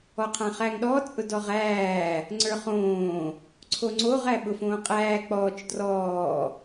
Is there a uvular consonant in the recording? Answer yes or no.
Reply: yes